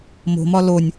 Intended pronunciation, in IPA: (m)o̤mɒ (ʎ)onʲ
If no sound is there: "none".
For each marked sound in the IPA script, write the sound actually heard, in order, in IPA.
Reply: m, l

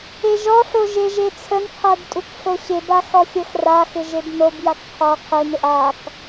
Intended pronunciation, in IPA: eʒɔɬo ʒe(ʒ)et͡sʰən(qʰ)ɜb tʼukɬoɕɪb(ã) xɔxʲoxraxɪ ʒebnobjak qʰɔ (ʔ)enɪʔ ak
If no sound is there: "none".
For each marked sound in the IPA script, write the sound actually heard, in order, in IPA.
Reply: ʒ, qʰ, a, qʰ

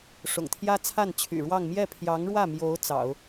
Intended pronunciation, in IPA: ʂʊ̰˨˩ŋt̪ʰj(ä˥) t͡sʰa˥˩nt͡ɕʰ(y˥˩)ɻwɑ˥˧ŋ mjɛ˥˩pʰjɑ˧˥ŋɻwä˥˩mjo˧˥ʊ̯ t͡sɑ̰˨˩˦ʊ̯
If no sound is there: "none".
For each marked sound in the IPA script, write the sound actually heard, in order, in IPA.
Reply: ä˥, y̰˨˩

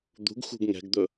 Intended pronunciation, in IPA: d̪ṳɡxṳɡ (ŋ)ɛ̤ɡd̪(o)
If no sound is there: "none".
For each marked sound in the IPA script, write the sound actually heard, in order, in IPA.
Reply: ŋ, ɵ

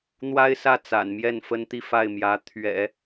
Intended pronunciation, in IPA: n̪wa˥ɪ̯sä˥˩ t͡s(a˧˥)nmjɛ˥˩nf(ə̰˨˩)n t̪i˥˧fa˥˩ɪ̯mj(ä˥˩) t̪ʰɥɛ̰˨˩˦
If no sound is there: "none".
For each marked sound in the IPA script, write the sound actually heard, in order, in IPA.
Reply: a̰˨˩, ə˥, ä˧˥

